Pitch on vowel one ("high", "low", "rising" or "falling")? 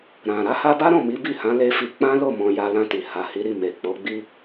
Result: low